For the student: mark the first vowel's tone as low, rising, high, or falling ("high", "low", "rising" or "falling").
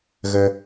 low